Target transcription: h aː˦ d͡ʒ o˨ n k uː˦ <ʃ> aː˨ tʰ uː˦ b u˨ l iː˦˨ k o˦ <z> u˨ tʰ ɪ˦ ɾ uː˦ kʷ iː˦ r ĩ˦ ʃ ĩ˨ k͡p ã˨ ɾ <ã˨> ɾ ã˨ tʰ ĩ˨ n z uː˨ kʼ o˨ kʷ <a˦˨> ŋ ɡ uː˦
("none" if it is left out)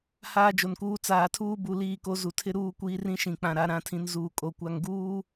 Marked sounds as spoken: t͡s, z, a˨, a˨

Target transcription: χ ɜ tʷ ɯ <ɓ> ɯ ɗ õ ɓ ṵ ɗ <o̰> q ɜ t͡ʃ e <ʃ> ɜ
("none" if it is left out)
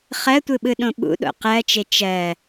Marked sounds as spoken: ɓ, o̰, t͡ʃ

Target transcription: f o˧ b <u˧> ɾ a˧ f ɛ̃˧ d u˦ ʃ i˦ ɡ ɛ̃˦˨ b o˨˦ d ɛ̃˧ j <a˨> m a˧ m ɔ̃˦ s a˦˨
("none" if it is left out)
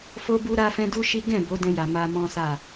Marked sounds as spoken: u˧, a˨

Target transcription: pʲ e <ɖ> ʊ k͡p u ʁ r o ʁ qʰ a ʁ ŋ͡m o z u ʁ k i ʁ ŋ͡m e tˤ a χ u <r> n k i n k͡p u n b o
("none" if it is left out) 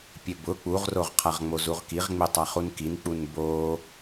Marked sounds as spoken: b, none

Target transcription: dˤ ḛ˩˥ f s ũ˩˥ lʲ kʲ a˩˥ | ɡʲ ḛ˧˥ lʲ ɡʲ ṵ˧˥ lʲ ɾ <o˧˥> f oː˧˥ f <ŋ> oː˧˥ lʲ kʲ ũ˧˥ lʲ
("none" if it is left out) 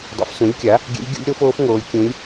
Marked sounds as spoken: o˧˥, ŋ

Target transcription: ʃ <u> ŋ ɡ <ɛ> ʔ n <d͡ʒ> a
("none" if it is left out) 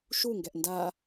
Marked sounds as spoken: u, ɛ, d

